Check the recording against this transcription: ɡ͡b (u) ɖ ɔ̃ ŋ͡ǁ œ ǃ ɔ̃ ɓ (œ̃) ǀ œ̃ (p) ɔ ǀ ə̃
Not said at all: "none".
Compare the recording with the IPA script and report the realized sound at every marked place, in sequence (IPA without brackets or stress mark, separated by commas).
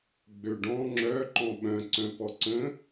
ø, œ̃, p